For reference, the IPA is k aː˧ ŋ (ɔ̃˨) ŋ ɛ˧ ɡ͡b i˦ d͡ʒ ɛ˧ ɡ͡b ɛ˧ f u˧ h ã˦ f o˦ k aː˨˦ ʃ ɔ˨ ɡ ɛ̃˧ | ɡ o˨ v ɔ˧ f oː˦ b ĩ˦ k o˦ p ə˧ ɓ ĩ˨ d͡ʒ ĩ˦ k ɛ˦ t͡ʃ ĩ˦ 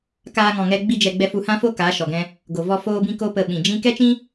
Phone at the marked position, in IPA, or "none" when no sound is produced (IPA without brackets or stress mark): ɔ̃˨